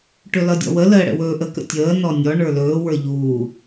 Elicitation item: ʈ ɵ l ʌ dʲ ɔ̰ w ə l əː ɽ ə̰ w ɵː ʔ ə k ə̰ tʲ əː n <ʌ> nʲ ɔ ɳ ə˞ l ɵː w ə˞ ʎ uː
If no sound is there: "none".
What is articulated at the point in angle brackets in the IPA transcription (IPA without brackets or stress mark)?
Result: ɔ